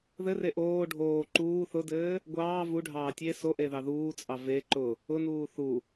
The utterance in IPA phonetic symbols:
ð ɘ r e ʔ oː ɖʱ oː ǃ uː θ ʊ d ɘː | ɡʷ ɑː v u ɖʱ ɑː tʲ e s o ʔ e ð ɑ ð uː t͡sʼ ɑ v e ǃ ʊ | ʊ n uː θ u

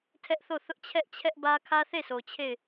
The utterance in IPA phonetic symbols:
tʰ ɛ˦ ʔ θ o˦˨ θ ʊ˦ ʔ t͡ɕʰ ɛ˦ ʔ t͡ɕʰ ɛ˦ ʔ b ä˦ kʰ ä˦ θ e˦˨ sʰ o˨ t͡ɕʰ e˦˨ ɪ̯

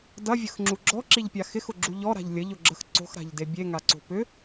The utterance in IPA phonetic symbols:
d ɐ vʲ ə x ŋ͡ǁ u ɡ͡ǁ ɔ ǁ i ʎ pʲ a x ɪ x ʊ ɡ͡ǁ u ʎ ɔ ɾ a̤ ʎ lʲ ə ʎ ʊ ɡ͡ǁ ə x ǀ o̤ x ɾ a̤ ʎ d e bʲ e ŋ a ǀ o̤ p ʏ

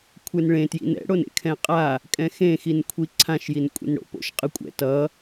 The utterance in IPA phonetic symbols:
kʷʰ e n ɭ ẽ t j ḭ n ɛ̰ ɽ o n ḛ kʰ ɛ̃ qʼ a | kʼ ɛ̃ x ẽ x i n kʷʰ i ǀʰ ã ʃ j i n kʷʼ ḭ n ɽ o̰ p o̰ ʃ qʼ ɯ kʷʼ ɛ̰ t ʌ

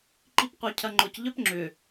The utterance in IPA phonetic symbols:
ǃ i p qʷ œ cʰ ɐ ŋ͡ǃ ʊ c ʎ œ p ŋ͡ǁ ʏ

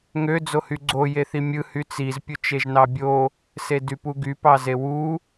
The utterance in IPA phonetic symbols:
ŋ ø d͡z o h y ɡ͡ǀ o j e θ i mʲ ɯ h y t͡s i z pʲ u t͡ʃ e ʒ n ɑ bʲ o | s e d y p u ɡ y p ɑ z e w u

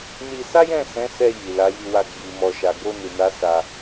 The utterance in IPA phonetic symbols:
n i˧ s a˦ j ɛ̃˦˨ s ɛ̃˨˦ s ɛ˧ j i˨ l a˨˦ j i˧ w a˧ ɡ͡b i˨ m ɔ˨ ʃ a˨ ɡ o˧ n i˨ n a˨˦ s a˧

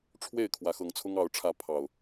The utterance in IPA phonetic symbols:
ʈ͡ʂʰ w e˥˨ ɪ̯ kʰ w ä˨˦ x ɤ˨˦ ŋ t͡sʰ ʊ˦ ŋ ɑ˨˦ ʊ̯ ʈ͡ʂʰ ä˨˦ pʰ ɑ˨˩ ʊ̯

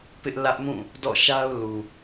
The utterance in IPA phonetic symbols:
p ɪ˦ ʔ l ä˦ ʔ m ũ˦˨ | d ɔ̰˦˨ ʃ a˦ ʊ̯ l u˨

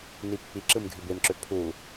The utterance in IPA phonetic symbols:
n i pː i ǁ ɯ m ɡʱ y b e m ǁ ø pʰ u

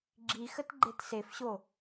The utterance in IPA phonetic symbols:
ɡ͡ǁ i x ə t ɡ͡ǃ e t s e f ɕ o

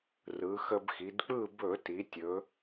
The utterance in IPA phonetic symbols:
r ɯ˩˧ x ə˧ b x i˩˧ d k͡p ɯ˥˨ b ɵ˧˩˧ t i˩˧ tʲ ɵ˩˧

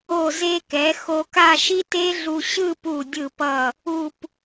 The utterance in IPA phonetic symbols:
o˧˩ z e˧ k ɛ˩˧ x o˧ k a˥˧ ʃ i˥ t e˥ ɮ u˧ ɕ ɯ˥˧ p u˧˩ dʲ ɯ˧˩ p ʌ˧˩ | u˧˩ p

